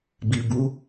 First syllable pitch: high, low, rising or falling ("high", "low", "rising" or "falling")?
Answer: low